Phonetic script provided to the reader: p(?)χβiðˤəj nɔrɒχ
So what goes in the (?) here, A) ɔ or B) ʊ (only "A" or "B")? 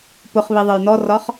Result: B